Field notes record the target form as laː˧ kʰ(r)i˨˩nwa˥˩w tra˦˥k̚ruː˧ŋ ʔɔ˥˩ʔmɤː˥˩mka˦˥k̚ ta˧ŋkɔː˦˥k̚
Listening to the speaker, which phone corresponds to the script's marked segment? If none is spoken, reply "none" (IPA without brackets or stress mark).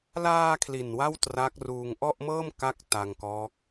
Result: l